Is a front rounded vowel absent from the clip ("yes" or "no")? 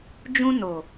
yes